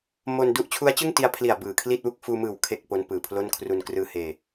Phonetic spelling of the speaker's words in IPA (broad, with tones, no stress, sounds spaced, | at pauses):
m o˧ n d u˦˥ ʔ t͡ɕʰ u˦˥ a̯ t͡ɕ ɯ˥˩ ŋ t i˧ a̯ pʰ l i˨˩ a̯ b ɯː˨˩ kʰ l i˥˩ t̚ w u˥˩ k̚ f uː˧ m ɯː˨˩ w kʰ e˥˩ k̚ p o˦˥ n p ɯː˨˩ pʰ l o˥˩ n kʰ r u˧ n k r ɯː˧ h eː˧